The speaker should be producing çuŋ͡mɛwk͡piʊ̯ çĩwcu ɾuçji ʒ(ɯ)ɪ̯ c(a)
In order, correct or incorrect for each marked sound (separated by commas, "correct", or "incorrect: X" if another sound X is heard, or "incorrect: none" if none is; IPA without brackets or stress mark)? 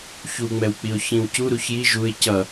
incorrect: u, incorrect: ʌ